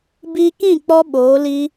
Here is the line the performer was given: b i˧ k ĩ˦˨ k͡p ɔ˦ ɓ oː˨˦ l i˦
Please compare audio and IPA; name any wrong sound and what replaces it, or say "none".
none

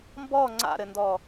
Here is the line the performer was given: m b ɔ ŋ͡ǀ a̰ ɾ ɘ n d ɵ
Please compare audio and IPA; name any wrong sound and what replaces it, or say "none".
ɵ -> ɔ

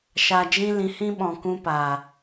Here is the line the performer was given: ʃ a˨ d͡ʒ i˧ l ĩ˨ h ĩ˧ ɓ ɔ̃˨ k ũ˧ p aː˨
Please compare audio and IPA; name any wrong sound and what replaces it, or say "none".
i˧ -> ĩ˧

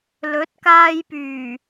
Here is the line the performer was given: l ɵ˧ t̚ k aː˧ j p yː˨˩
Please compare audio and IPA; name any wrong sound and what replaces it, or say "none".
ɵ˧ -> ɵ˨˥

